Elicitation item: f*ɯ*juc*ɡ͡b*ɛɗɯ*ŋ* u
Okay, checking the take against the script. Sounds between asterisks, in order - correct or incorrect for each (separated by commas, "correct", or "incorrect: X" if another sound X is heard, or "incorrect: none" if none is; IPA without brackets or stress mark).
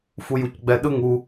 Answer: incorrect: u, correct, correct